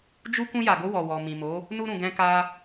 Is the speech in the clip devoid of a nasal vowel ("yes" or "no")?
no